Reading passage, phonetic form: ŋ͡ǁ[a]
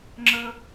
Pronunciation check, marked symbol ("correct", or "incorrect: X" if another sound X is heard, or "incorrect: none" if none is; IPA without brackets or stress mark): incorrect: ə